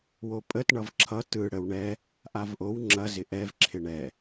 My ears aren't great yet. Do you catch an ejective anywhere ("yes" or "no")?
yes